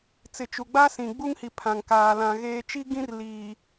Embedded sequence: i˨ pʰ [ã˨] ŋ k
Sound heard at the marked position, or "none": ã˨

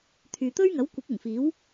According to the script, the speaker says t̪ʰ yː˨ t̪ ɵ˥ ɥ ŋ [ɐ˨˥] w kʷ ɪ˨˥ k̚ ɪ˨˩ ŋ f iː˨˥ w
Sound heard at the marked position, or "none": ɐ˨˥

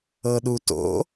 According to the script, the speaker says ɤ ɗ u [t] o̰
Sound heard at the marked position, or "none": t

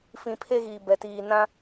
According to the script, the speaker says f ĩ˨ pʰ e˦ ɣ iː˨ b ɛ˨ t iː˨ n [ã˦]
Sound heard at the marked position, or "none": ã˦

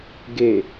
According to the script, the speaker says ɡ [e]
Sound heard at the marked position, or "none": e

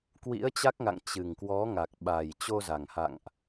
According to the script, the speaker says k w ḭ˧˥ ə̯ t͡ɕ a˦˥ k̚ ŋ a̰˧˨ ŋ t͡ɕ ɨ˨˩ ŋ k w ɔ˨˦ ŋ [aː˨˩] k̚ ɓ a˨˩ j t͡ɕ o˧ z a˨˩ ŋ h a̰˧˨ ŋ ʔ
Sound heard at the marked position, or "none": a˨˩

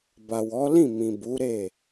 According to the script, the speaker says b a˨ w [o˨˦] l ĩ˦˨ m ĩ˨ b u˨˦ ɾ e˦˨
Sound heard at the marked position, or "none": ɔ˨˦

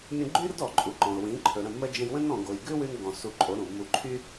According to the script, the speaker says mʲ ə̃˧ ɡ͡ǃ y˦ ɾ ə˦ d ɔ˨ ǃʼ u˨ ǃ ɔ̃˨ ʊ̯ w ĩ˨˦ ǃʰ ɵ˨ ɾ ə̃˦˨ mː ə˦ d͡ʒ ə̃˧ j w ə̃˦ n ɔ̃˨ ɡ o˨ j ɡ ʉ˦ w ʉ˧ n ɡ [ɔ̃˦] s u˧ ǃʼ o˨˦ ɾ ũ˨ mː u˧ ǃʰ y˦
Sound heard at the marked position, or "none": ɔ̃˨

